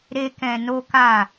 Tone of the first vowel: high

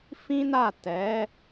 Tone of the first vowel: high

